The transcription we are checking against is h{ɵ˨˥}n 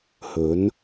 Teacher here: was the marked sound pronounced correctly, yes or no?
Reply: yes